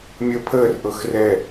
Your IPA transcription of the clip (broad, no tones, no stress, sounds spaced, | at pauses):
mʲ əː pʰ əː r ʔ ɤ x r ɛ